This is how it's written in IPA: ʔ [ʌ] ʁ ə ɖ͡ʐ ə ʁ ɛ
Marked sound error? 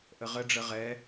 yes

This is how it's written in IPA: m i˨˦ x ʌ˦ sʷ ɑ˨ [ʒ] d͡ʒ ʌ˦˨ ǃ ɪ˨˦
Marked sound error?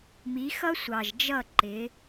no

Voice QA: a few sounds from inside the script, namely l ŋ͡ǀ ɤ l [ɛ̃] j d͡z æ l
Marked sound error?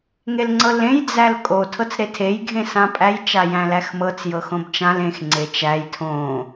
yes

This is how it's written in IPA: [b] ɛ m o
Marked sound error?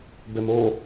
no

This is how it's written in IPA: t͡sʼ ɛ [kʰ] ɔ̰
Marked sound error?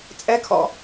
no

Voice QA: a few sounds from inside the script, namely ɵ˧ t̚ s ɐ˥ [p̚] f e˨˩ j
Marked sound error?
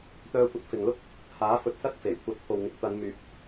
yes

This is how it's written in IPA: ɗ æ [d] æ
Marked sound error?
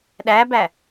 yes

